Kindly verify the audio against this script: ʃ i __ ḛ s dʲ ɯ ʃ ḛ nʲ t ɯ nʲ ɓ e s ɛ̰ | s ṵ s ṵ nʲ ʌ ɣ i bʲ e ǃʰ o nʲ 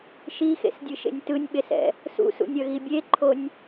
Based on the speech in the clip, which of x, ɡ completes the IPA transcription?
x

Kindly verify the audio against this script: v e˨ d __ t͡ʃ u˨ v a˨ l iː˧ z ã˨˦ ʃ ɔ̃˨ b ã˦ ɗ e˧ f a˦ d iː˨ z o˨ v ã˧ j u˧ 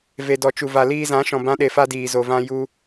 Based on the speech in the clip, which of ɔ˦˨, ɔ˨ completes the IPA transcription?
ɔ˨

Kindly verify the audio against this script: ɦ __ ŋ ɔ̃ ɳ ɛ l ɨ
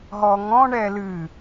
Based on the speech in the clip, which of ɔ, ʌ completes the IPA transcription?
ɔ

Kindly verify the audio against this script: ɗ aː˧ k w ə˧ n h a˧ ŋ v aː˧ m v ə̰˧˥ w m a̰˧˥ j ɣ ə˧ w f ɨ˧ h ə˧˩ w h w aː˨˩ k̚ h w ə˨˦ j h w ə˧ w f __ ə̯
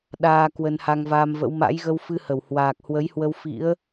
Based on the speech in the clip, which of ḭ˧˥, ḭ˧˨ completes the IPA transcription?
ḭ˧˥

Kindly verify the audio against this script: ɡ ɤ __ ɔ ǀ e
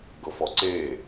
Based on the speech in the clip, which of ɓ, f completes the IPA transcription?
f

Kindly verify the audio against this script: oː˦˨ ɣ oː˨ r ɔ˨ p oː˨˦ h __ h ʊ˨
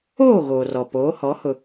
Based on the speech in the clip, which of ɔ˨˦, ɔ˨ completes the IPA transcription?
ɔ˨˦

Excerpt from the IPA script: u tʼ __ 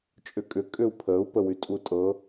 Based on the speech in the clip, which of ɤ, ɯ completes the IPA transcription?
ɤ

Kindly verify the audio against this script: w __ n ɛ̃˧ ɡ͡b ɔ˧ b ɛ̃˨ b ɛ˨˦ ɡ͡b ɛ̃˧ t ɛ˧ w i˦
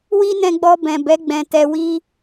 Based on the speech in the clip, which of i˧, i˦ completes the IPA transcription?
i˦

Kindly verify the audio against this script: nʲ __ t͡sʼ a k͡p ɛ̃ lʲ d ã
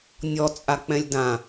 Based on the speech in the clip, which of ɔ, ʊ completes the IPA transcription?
ɔ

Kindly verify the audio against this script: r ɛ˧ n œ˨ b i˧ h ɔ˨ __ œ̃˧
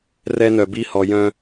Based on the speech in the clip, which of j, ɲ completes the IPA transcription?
j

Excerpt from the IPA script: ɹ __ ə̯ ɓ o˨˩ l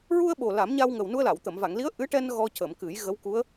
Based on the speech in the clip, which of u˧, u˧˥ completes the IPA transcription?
u˧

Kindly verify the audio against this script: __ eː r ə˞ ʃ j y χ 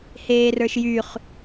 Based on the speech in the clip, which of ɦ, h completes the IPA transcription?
h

